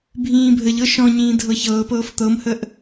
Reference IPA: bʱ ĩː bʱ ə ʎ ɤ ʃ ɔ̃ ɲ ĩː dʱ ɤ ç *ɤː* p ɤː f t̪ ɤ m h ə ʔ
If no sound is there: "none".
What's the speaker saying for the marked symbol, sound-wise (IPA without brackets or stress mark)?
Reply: ɤː